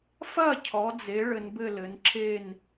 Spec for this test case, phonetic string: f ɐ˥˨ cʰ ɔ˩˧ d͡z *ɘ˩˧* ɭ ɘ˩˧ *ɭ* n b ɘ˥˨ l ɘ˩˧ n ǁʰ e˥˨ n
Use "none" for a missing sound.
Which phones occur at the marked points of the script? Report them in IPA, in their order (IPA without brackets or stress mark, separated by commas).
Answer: e˩˧, none